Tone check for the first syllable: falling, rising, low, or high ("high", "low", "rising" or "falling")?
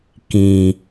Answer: low